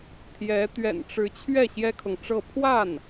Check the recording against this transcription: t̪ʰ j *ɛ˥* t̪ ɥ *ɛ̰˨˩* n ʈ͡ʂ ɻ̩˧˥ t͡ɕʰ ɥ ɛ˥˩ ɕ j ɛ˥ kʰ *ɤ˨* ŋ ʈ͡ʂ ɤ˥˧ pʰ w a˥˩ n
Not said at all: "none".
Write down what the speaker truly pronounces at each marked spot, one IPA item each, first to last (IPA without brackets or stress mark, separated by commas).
ɛ˧˥, ɛ̰˨˩, ɤ˨